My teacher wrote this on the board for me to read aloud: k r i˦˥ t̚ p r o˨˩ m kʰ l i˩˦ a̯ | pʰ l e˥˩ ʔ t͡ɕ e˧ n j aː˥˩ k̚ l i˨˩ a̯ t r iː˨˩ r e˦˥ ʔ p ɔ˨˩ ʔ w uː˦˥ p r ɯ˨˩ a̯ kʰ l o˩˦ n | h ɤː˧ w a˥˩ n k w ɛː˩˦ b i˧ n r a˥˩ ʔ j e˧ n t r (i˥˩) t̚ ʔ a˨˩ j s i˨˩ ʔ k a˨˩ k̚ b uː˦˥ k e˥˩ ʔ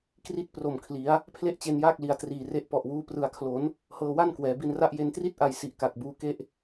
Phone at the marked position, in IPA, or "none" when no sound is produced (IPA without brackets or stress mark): i˥˩